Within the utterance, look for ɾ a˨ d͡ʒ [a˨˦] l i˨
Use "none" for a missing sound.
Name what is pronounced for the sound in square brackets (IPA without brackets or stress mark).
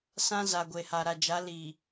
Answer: a˨˦